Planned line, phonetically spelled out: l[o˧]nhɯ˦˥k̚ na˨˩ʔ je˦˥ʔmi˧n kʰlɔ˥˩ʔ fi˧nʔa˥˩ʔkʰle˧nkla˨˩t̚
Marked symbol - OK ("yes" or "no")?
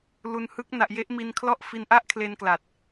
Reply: no